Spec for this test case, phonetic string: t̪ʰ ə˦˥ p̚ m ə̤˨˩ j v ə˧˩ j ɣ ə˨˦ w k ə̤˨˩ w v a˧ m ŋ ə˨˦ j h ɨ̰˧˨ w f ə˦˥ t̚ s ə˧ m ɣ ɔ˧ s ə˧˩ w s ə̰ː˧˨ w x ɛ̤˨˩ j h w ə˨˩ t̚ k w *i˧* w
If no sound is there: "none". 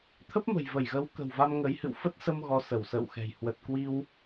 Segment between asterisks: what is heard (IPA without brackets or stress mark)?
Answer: i˧